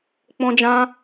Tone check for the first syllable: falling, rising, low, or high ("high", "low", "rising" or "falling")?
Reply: high